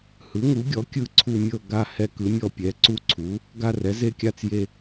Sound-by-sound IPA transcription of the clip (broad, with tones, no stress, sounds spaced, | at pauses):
h ɯ˩˥ ŋ u˩˥ ɡʲ ɔ˩˥ kʲ ɯ˦˨ ǀʰ u˦˨ mʲ ɤ˦˨ ɡ a˦˨ h ɛ˦ k ɯ˩˥ mʲ ɔ˦˨ pʲ ɛ˩˥ ǀ u˦ ǀʰ u˩˥ | ɡ a˦˨ r ɛ˩˥ z e˦˨ kʲ a˦˨ t͡s j e˦˨